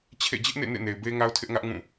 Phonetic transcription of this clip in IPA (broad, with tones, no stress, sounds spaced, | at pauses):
t͡ɕʰ ḛ˦˨ d͡ʑ ɪ˦ ʔ n ḛ˦˨ n ḛ˦˨ n e˨ ɪ̯ b e˦ ŋ a˦ ʊ̯ tʰ ɪ˦ ʔ ŋ ä˦ ʔ ŋ ũ˦˨